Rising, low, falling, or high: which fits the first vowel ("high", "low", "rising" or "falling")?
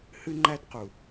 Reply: high